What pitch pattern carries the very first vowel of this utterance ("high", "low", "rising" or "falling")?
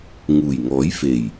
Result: low